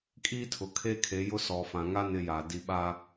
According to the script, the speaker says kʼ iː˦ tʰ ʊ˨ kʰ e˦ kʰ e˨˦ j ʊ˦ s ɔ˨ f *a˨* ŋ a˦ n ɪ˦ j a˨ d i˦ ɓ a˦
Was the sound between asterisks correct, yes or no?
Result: no